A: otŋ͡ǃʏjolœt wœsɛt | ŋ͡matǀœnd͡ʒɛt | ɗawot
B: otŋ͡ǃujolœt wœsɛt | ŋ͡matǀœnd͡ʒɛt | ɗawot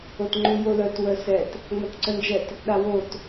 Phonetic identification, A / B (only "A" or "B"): B